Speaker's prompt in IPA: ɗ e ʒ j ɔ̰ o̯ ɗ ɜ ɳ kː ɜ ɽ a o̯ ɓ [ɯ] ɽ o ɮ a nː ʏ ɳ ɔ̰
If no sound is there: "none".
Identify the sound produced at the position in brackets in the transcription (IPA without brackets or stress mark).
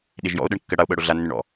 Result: ɤ